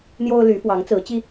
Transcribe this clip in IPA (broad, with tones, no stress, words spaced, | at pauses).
n̪jo˦ʊ̯ly˨˦ fwɑ˨˦ŋt͡sɹ̩˨˦t͡ɕi˦